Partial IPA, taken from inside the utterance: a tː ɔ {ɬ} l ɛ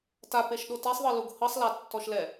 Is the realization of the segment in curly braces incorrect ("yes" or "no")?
yes